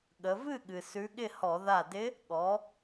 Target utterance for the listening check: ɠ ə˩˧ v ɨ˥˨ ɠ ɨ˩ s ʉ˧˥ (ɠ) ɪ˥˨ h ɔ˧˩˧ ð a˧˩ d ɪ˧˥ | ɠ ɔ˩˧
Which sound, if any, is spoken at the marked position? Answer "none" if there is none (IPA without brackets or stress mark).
ɠ